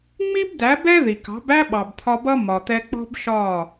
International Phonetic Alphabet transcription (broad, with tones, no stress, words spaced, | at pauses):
ŋ͡mi˦bdæ˨˦bɛ˦ ði˨kɑ̤˨˦bæ˦ ɓɑ˨bt̪ʰɒ˧bʌ˦ mɒ˨t̪ɛ˧ k͡pɔ̤˦bʃɒ˦˨